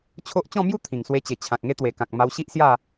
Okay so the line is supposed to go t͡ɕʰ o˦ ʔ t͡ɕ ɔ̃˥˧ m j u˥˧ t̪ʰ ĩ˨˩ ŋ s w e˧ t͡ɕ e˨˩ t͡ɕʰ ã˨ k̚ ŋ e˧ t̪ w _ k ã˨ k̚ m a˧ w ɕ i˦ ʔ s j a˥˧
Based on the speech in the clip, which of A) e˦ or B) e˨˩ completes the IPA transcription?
B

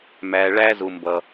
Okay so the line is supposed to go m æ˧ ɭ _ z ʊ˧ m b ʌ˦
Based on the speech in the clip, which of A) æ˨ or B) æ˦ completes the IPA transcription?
B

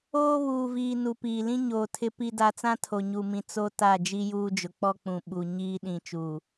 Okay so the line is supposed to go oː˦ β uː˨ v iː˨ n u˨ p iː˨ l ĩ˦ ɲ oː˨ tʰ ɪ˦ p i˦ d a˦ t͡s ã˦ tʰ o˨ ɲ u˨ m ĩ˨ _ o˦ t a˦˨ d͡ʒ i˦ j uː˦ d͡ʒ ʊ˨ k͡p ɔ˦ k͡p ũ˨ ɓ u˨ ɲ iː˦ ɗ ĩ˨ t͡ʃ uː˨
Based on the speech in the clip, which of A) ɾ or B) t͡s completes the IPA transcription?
B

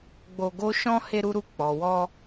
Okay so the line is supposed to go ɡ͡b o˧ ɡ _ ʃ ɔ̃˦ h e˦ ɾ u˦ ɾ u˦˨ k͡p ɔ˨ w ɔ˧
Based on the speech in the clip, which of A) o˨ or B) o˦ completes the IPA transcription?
B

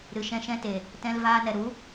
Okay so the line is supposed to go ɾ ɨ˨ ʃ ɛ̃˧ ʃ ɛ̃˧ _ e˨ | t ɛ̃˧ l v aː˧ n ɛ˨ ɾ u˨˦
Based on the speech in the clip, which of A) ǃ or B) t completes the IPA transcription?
B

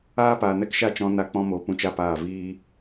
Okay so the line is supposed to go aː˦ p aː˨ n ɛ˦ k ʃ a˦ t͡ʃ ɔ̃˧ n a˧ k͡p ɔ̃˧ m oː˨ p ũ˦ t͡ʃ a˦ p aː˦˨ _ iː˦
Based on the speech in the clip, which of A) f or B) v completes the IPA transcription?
B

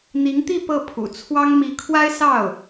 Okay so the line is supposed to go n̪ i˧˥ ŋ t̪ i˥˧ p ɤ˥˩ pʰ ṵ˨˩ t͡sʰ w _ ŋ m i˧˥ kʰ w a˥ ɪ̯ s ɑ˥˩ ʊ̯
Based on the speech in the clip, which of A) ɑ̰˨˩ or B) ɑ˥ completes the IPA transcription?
B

